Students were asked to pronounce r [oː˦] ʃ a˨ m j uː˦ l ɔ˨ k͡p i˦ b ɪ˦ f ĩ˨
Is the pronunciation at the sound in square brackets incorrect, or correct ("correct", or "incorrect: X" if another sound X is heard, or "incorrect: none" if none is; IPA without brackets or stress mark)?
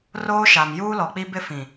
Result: correct